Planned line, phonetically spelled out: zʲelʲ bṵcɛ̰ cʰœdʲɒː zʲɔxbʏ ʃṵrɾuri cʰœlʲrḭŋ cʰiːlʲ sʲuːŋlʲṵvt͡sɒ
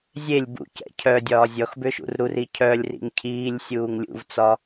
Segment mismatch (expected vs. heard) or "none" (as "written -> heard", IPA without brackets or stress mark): none